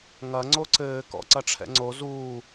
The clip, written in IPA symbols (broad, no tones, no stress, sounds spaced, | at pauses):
ŋ ɐ ŋ͡ǀ o ǀ ɘː k ɔ̰ ǀ ɐ ʈ͡ʂʰ ɛ̰ ŋ͡ǀ o z uː